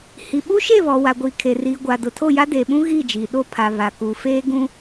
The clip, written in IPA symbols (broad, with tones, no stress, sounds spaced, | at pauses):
h i˨ ɓ u˦ ʃ e˦˨ β ɔ˨ w a˨ ɡʷ iː˨ kʰ e˨ r iː˨ ɡʷ a˨ d ʊ˨ tʰ o˦˨ j a˦ d eː˨ ɓ ũ˦ ɣ iː˦˨ d͡ʒ iː˨ ɗ o˦ pʰ a˨ β a˨ k u˨ f eː˦ ɡ ũ˦